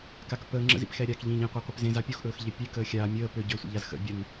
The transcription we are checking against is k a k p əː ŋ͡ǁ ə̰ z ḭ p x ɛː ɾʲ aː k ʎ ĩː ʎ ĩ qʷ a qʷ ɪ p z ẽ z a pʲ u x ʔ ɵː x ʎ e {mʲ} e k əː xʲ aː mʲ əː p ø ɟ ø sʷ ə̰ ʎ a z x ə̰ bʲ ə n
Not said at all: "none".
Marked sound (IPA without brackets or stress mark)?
pʲ